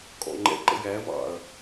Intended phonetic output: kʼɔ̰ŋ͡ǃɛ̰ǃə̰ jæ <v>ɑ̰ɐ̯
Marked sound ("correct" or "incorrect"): correct